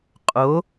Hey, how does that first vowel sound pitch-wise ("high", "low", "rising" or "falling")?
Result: rising